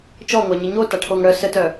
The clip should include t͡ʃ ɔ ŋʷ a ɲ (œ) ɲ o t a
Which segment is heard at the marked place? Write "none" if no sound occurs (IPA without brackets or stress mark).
ə